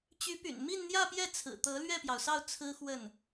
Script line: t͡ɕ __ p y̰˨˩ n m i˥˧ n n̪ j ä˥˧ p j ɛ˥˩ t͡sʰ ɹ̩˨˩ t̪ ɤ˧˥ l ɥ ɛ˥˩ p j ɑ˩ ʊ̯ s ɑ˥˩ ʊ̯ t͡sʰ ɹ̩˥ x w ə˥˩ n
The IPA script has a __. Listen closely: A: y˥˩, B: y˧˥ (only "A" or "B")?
B